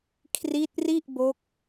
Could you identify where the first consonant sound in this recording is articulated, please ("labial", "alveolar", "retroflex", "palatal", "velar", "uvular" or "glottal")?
velar